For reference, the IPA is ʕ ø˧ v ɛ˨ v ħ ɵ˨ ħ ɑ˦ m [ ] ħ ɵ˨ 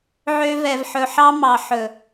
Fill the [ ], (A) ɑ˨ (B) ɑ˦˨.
A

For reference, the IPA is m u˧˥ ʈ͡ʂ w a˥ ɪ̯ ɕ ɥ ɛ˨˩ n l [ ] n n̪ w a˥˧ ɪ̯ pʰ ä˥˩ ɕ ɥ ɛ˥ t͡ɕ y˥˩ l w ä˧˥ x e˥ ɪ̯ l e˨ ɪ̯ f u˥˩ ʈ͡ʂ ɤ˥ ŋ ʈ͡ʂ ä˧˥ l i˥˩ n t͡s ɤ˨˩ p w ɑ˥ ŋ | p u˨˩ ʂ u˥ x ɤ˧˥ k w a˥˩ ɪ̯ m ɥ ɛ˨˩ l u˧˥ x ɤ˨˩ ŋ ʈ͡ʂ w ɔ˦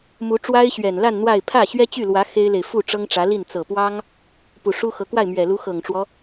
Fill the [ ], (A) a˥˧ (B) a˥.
A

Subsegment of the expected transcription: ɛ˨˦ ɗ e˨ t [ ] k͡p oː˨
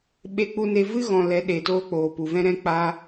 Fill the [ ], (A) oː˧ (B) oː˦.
B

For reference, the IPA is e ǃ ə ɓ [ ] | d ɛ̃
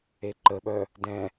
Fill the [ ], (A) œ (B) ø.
A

